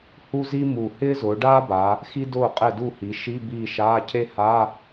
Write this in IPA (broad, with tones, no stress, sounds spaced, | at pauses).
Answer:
h u˥ z i˥ m u˨˩ h ɪː˥ z ʊː˩˧ ɖ aː˥ b a˩˧ | x i˥ d ʊː˦˨ qʼ ɛ˦˨ d u˦˨ h i˩˧ ʃ i˧˥˧ b iː˦˨ ʃ aː˧˥˧ cʰ e˥ h a˧˥˧